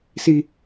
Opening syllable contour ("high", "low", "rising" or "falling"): high